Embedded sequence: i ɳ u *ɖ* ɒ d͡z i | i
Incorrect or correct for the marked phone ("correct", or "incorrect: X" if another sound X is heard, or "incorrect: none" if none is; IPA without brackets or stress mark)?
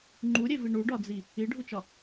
correct